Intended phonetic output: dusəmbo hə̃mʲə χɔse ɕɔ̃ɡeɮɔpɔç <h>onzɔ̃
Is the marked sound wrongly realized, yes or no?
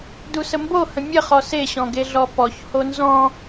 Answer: no